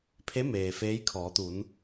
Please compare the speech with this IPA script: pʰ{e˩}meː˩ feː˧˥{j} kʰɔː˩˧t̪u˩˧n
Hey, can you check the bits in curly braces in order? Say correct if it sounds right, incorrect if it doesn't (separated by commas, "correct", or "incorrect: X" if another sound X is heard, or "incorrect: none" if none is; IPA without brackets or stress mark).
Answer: incorrect: e˧˥, correct